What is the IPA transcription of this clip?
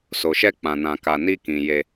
s o˨ ʃ ɛ˧ k͡p ã˨ n ã˨ k a˨ n i˧ k ĩ˨ j e˧

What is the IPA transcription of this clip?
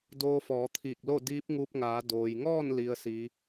d oː˧ f ɔː˩˧ t̪ʰ iː˧˩ k̚ l o˥˨ d iː˧˥ p̚ ŋ uː˧ p̚ ŋ aː˩˧ d oː˩ j ŋ ɔː˥˨ n l i˧˥ ə̯ s iː˧˥

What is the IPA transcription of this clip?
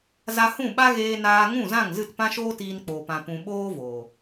z a˧ h ũ˦˨ ɓ a˦ ɣ eː˧ n aː˧ ŋ ũ˦˨ z ã˦˨ ŋ z ɨ˦˨ t p ã˦ ʃ oː˦ t iː˧ n k͡p oː˨ p ã˨ p ũ˨ ɓ oː˦ v oː˨

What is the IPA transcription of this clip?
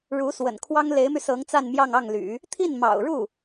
ɻ u˧˥ s w ə̰˨˩ n kʰ w ɑ˥ ŋ l e˧˥ ɪ̯ m y˧ s ɤ˧˥ ŋ t͡s a˥˧ n m j ɑ˥˧ ŋ ɑ˥˩ ŋ l y̰˨˩˦ | t̪ʰ i˥˩ n m ɑ̰˨˩ ʊ̯ ɻ u˥˩

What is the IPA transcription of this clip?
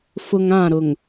f ʊ˨ ŋ ã˦˨ ɾ ʊ˨ ŋ

